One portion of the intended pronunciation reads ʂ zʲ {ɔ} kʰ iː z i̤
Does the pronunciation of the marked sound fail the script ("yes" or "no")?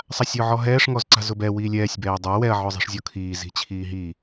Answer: no